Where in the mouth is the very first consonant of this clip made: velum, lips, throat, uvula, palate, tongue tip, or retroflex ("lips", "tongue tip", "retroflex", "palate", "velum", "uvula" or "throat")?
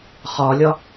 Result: uvula